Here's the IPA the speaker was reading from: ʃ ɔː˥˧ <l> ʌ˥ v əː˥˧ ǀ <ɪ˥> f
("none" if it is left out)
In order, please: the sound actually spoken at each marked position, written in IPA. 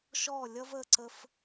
lʲ, ə˥

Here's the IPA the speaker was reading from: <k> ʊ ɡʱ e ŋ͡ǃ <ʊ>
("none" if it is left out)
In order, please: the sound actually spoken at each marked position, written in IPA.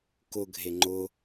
k, ʊ

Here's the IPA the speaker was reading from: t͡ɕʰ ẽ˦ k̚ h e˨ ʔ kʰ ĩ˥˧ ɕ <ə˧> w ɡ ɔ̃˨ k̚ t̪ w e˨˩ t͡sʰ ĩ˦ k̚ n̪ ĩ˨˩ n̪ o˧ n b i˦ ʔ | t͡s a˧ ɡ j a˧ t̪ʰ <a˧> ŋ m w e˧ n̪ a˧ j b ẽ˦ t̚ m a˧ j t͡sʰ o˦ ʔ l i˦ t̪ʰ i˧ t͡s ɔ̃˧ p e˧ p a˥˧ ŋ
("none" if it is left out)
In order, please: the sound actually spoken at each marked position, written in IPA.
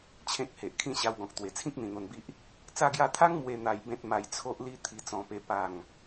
a˧, a˦

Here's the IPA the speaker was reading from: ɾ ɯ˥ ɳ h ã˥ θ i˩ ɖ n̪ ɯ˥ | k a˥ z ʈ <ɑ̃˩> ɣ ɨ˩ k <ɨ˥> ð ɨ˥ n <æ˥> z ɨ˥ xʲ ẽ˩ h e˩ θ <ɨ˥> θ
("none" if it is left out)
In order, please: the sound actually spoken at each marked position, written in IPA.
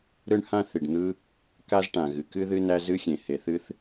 ã˩, ɨ˥, æ˥, ɨ˥

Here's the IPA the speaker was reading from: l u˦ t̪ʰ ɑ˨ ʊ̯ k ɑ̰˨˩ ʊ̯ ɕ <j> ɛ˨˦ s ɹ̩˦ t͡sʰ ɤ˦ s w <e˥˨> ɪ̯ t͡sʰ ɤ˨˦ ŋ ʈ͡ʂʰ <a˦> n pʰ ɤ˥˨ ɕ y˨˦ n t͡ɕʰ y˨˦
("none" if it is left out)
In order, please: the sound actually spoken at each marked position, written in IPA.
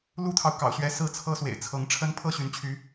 ɥ, ḛ˨˩, ə˦

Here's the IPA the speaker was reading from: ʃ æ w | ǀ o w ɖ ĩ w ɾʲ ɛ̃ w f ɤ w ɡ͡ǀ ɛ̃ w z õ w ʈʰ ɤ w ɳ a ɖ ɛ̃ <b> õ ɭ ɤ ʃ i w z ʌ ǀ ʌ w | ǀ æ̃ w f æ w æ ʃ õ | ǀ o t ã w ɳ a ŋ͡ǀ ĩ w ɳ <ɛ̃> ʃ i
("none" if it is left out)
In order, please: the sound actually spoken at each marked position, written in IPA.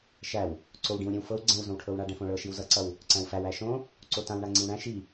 f, æ̃

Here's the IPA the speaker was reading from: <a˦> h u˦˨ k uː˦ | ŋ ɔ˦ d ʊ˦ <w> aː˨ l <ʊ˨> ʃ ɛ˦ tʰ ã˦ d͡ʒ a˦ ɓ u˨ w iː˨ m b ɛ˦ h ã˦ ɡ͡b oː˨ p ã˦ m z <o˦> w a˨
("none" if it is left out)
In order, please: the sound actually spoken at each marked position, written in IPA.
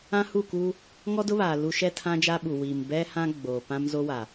ã˦, β, u˨, o˦

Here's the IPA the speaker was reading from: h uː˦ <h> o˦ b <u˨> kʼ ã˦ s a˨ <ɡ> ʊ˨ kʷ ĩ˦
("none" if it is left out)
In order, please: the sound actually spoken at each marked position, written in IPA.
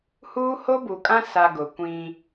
h, u˨, ɡ

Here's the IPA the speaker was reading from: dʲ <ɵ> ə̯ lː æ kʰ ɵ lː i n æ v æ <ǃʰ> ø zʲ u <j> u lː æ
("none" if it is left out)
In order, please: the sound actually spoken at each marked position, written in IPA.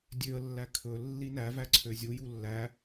ø, ǀʰ, j

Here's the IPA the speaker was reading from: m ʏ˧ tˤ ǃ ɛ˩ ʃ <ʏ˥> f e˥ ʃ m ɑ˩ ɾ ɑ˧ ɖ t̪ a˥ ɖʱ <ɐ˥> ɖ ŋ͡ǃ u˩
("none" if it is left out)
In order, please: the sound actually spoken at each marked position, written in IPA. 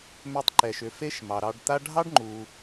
ʏ˩, ɑ˥

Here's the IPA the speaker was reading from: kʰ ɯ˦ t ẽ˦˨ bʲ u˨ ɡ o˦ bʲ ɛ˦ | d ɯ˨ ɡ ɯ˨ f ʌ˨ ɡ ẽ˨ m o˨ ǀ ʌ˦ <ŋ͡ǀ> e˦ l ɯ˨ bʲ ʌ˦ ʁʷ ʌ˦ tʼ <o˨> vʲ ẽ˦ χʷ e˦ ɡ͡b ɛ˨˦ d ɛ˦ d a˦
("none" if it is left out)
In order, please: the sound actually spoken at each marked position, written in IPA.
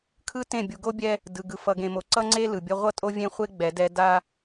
ŋ͡ǀ, o˦

